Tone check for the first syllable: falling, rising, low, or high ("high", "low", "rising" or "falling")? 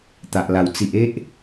low